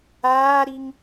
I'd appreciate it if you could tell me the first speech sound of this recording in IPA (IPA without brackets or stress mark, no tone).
aː